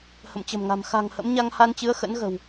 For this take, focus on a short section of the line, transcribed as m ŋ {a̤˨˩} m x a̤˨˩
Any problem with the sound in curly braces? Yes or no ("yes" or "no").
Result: no